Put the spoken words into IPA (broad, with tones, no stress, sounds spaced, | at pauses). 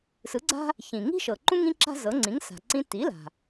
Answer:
s ɯ˩˥ ɡ͡ǀ a̤˥ | ç ĩ˩ ŋ i̤˥ ʃ ɤ˩ ǃ ũ˥ ŋ ĩ˥ ǁ a̤˥ z ɤ˩˥ ŋ͡ǀ ĩ˩˥ ŋ s a̤˩ ǀ ĩ˧ t i˩˥ l a̤˩